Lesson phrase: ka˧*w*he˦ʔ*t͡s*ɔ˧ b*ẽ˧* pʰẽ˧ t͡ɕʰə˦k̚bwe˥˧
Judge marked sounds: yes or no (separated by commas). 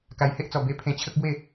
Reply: no, yes, no